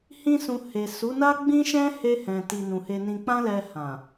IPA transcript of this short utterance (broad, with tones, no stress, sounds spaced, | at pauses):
h ĩ˦ s ũ˧ h e˨ s u˨˦ n a˦ ɡ͡b ĩ˦ ʃ ɛ̃˦ h e˧ h ɛ̃˨ t i˨ n ũ˨ h e˧ n ĩ˧ k͡p ã˦ l ɛ˧ h ã˨